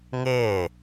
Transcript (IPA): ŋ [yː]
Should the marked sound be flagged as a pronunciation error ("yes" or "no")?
yes